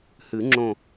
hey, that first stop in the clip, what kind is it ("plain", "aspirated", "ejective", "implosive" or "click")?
click